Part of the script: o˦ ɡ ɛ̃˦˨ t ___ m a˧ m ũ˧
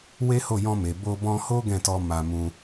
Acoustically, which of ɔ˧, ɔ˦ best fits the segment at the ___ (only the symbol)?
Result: ɔ˧